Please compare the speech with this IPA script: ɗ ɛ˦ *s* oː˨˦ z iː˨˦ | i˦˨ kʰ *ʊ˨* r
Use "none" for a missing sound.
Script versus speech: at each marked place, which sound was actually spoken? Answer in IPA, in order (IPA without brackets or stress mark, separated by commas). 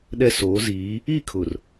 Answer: s, ʊ˨